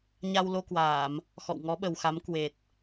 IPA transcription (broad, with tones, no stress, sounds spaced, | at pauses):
ɲ a˧ w l o˧ k w aː˧˩˨ m | x ɔ̰˧˨ w ŋ ɔ˨˦ ɓ ə˨˩ w x a˨˦ m k w e˨˩ t̚